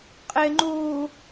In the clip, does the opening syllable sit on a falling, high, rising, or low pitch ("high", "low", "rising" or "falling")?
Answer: low